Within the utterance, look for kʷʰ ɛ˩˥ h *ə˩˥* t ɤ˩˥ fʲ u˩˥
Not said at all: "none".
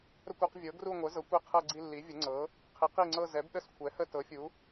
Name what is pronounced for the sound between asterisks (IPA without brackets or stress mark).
ə˦˨